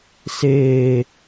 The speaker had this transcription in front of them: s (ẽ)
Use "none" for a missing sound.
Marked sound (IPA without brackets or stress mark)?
e